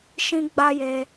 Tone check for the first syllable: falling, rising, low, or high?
high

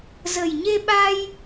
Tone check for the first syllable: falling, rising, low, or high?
low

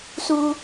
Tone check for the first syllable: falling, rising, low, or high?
high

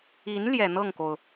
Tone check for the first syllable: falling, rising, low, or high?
rising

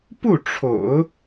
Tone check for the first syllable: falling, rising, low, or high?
falling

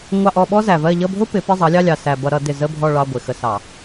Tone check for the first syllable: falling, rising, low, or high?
falling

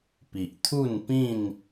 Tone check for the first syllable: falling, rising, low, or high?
low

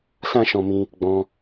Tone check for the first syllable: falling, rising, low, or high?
high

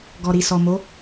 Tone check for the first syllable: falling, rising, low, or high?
low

